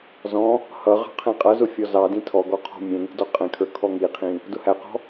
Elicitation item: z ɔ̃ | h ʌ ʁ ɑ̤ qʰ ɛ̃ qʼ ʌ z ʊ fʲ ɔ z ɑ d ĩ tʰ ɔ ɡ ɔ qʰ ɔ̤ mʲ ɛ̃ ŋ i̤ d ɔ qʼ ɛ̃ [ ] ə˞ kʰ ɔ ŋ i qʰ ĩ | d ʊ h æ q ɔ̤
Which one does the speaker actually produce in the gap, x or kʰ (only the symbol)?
kʰ